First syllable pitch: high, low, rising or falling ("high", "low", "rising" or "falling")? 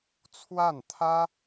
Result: falling